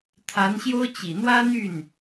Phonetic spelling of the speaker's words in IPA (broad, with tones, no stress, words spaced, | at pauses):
t̪ʰa˧˥nɕjo˥ʊ̯ t͡ɕi˨˩n̪wä˥n̪y˥˩n